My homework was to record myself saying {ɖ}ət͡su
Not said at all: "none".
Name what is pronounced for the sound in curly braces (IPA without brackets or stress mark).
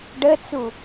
ɖ